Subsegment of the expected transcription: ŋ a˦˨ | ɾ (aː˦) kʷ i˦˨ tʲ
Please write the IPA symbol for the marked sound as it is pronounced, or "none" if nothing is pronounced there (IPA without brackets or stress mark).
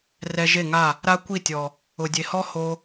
a˦